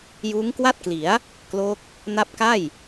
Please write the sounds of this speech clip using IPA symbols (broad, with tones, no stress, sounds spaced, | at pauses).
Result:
j uː˦˥ ŋ k w a˥˩ t̚ k l i˩˦ a̯ | k l o˦˥ k̚ | n a˦˥ p̚ k a˥˩ j